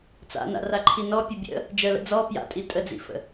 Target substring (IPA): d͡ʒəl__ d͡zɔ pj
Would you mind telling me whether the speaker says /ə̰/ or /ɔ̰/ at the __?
ə̰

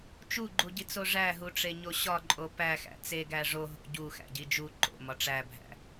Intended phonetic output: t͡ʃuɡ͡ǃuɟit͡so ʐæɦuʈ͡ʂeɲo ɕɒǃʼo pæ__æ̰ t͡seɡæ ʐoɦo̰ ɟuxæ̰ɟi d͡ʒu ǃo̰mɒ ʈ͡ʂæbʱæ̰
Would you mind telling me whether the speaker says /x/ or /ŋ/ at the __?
x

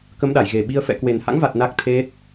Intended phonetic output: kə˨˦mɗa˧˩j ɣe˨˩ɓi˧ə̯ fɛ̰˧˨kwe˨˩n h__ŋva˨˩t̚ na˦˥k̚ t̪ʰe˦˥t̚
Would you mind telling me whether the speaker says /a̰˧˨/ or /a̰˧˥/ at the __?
a̰˧˥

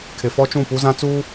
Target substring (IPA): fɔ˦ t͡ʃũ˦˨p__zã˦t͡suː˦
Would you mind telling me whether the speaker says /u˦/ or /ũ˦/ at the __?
u˦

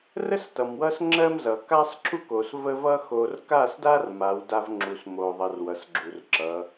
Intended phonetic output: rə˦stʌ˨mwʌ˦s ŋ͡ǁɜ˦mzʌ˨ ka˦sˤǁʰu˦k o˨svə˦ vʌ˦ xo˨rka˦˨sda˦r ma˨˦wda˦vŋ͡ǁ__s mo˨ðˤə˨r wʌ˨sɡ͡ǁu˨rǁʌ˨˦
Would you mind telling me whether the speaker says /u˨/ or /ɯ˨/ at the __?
u˨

